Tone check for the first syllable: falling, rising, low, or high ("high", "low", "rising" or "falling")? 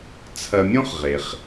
low